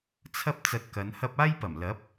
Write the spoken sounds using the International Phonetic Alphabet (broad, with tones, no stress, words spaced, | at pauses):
t͡sʰɐ˥p̚ t͡sɐ˧t̚kɐ˨˧nhɐ˥p̚ aː˥jpɐ˨˩m lɐ˨˥p̚